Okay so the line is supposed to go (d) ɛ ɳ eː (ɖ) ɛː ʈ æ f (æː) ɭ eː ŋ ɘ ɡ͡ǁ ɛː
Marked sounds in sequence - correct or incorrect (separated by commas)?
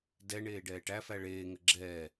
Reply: correct, correct, incorrect